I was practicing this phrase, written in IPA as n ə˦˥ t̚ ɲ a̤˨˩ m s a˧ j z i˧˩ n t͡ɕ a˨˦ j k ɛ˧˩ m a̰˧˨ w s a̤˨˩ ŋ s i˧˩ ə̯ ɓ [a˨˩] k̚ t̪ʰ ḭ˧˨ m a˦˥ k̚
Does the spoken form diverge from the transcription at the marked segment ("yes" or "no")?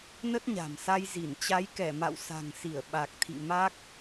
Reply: no